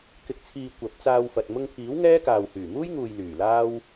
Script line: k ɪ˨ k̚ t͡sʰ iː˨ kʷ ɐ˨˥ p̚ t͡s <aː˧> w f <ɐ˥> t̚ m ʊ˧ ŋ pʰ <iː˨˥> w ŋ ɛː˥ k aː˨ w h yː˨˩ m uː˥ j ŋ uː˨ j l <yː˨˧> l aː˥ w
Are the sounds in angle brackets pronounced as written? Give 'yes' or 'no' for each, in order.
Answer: yes, no, yes, no

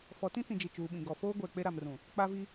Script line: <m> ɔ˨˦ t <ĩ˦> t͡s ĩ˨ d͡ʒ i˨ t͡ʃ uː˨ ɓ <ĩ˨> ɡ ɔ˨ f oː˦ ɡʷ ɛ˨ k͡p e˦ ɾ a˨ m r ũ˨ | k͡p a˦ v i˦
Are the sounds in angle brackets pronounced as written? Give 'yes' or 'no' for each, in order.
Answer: no, yes, yes

